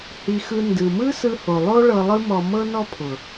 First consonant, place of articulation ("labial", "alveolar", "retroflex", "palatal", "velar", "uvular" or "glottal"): glottal